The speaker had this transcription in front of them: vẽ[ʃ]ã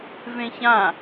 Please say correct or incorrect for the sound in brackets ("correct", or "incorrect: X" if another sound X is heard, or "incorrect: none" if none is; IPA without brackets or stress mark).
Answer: incorrect: ç